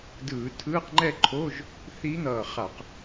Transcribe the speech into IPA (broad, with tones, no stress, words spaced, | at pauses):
dɯː˧˩˧ tʰɯː˧˥˧qŋ͡ǃɛ˥˨ǃʰo˧˥˧ʒ | θi˧˥n̪ʌː˧˩χa˧˩˧q